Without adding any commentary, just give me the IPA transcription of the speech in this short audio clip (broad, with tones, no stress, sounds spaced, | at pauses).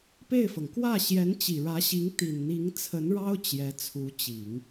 p e˥˩ ɪ̯ f ɤ˩ ŋ k w ä˥˩ ɕ j ɛ˧˥ n t͡ɕ i˨˩ ɻ ä˧˥ ɕ i˧˥ ŋ t̪ i˨˩ n n̪ i˧˥ ŋ t͡sʰ ə˧˥ n ɻ ɑ˥ ʊ̯ t͡ɕ j ɛ˧˥ t͡sʰ u˧˥ t͡ɕ i˨˩˦ ŋ